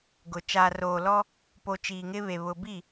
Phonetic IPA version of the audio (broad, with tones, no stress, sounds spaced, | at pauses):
ɡ ʊ˨ t͡ʃ aː˨ r oː˨ l ɔ˦ | p o˨ t͡ʃ iː˨ ŋ ɪ˦ β e˨ β ʊ˨ b i˦˨